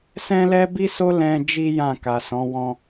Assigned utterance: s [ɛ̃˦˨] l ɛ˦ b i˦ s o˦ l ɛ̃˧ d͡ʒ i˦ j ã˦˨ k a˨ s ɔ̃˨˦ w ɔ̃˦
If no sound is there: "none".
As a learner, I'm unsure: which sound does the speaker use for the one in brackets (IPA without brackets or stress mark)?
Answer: ɛ̃˦